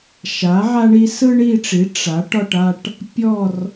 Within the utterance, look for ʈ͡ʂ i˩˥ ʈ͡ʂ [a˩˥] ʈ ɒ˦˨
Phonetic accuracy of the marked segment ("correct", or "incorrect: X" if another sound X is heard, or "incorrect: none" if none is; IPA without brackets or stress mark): correct